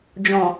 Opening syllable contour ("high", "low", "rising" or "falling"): low